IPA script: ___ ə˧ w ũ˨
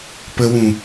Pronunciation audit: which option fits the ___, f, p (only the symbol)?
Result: p